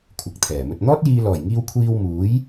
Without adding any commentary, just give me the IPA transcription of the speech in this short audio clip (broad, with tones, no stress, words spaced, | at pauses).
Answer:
kʷʰɐ˨k̚t̪ʰɛː˨˩mɵ˧t̚ n̪ɔː˥t̚jiː˧ lɔː˨˩jŋiː˧w kʷʰiː˧w muː˨˥j